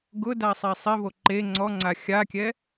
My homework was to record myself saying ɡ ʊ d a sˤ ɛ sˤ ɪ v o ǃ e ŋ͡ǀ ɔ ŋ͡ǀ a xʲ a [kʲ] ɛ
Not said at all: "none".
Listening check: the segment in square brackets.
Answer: kʲ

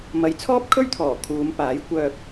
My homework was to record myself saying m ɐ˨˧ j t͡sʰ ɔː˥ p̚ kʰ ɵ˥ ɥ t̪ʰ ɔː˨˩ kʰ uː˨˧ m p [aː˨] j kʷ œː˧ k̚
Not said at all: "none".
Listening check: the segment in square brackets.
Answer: aː˨˥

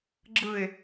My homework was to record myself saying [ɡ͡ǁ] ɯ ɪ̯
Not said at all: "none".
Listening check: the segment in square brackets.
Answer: ɡ͡ǁ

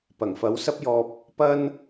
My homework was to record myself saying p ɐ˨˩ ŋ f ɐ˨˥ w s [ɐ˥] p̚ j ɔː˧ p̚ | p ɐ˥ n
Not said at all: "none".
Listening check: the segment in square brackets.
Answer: ɐ˥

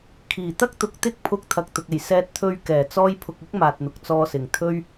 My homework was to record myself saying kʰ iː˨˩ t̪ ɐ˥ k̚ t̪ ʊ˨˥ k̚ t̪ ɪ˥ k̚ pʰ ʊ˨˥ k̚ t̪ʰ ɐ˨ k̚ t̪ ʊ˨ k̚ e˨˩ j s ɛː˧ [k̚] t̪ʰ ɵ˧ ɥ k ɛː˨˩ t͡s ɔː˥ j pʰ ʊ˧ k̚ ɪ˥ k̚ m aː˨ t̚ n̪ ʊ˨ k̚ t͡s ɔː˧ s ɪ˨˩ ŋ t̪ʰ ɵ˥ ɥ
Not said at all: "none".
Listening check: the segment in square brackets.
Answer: t̚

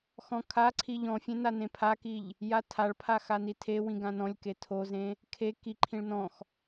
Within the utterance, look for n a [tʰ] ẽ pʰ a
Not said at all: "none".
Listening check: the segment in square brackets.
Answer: n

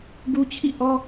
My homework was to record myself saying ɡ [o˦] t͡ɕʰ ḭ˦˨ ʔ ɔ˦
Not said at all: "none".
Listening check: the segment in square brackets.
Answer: u˦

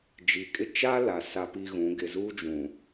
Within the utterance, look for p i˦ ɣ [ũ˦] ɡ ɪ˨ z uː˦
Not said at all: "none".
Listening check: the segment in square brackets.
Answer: ũ˨˦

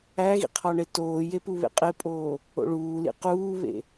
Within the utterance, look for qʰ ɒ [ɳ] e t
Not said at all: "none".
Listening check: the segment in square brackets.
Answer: ɳ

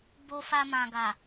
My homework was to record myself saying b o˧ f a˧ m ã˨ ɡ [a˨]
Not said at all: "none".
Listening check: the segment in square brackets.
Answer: a˨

